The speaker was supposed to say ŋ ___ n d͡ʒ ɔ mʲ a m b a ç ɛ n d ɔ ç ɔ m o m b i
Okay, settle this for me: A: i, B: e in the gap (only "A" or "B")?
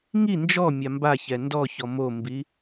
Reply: A